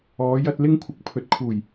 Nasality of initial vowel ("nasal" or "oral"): oral